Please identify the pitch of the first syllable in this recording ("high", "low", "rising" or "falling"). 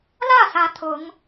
falling